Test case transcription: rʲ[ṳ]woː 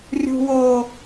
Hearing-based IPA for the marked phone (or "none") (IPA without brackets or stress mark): ṳ